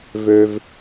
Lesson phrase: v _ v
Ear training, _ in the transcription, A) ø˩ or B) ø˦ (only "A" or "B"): B